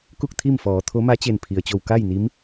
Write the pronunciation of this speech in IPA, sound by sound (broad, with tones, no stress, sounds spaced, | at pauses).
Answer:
k u˥˨ k̚ t̪ʰ i˥˨ m f ɔː˩˧ t̪ʰ o˧˥ m a˧˥ t͡ɕ e˧˩ n pʰ i˩ ə̯ t͡ɕ o˧˩ w k a˥˨ j n i˧˥ m